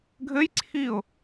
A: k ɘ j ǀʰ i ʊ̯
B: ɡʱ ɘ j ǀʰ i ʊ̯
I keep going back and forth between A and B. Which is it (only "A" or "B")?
B